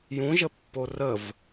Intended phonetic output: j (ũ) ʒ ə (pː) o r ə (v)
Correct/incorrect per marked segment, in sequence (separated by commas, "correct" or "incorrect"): correct, correct, correct